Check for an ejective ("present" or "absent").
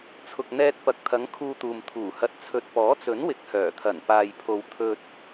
absent